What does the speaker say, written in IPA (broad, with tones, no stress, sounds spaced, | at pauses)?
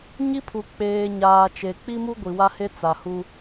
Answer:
ɲ i˦ pʰ u˨ k͡p eː˨ ɲ aː˨ t͡ʃ e˨ k͡p i˦ m u˦ ɡʷ i˨ w a˦ h e˦ t͡s a˨ h u˦